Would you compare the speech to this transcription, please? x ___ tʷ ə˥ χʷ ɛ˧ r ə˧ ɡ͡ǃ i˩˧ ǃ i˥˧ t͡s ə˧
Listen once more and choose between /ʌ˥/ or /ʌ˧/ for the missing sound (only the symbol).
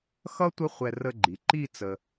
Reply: ʌ˥